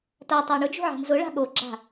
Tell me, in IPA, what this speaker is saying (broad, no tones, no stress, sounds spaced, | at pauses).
t a tˤ a ɳ ʊ d͡ʒ ṳ ʕ a̤ n z ʊ ɭ a̤ ɠ o ɡ͡ǁ a̤